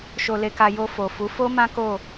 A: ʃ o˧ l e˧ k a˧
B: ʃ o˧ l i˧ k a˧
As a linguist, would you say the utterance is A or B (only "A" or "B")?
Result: A